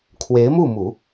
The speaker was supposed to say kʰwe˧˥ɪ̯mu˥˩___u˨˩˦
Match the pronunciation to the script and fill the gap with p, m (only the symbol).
m